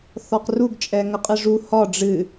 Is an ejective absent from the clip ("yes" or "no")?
no